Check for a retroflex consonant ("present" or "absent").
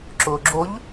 absent